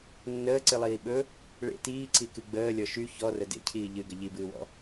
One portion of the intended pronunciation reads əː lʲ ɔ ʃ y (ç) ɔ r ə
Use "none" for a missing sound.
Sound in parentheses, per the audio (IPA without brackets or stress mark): ç